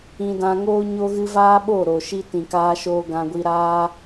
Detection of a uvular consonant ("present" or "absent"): absent